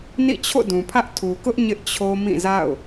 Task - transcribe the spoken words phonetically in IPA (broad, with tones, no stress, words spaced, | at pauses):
nḭ˦˨t͡ɕʰo̰˦˨dũ˨pʰä˦ʔ tʰu˨kʊ˦ʔ ɲɪ˦ʔt͡ɕʰo˦mĩ˦˨za̰˦˨ʊ̯